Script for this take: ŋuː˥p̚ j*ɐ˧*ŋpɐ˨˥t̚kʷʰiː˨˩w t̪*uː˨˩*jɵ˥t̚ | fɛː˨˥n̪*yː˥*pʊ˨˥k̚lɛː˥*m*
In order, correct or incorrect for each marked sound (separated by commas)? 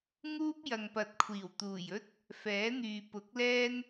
incorrect, correct, incorrect, incorrect